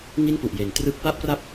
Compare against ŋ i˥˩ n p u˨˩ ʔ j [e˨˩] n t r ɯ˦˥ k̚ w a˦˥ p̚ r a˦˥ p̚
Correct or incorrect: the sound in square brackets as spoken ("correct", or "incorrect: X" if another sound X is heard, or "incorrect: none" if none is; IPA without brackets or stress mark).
correct